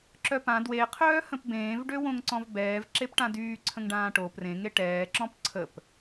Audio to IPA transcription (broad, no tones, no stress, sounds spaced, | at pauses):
ǁ œ p ã d w e qʰ œː h ə̃ p b ẽː v ɖ ø w õ ŋ ǀ ɔ̃ v b ɛː v ǁ e p ʈ ã d yː ǀʰ ə̃ ŋ ɖ ãː ʈ o p r ẽ ŋ e ʈ ɛː ǁ ɔ̃ p ǀʰ ə p